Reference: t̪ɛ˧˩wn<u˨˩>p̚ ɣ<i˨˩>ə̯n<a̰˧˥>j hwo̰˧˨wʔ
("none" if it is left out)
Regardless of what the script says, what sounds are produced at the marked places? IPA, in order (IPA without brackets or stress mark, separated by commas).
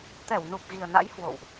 u˨˩, i˨˩, a̰˧˥